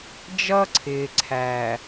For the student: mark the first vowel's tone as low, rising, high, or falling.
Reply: high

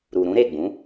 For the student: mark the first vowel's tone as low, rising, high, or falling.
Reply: low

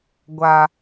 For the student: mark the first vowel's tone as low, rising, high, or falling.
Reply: low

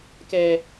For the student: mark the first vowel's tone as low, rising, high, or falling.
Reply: high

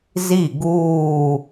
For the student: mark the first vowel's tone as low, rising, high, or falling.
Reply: falling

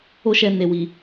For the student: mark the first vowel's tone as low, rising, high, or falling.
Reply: high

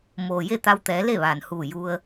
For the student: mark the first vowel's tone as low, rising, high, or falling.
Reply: low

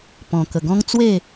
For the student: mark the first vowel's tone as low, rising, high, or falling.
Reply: low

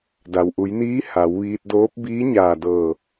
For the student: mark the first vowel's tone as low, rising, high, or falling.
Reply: low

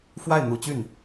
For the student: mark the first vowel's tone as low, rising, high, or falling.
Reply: falling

